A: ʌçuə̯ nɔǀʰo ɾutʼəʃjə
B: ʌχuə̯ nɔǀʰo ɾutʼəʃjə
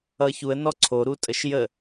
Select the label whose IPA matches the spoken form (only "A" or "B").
A